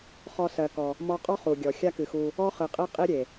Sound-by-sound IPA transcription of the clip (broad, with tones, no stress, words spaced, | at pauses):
χɔ˧sɜ˨kɔ˨ | mɔ˧qʼɔ˦ χu˨ɡʲɔ˨ xʲa˦kɨ˨xu˧ | ɔ˦χɨ˨qʼe˦ qʼi˦ɾʲe˨